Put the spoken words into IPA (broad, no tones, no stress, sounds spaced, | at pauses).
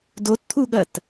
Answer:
d o t t̪ʰ u ɠ ɐ t